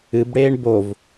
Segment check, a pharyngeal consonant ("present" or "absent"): absent